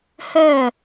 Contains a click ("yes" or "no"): no